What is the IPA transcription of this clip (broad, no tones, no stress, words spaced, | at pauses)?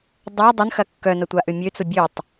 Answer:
dˤa dˤʊn xɐkːœnɐ tʷaʔʏmʲøt͡sʊ bʲøtˤ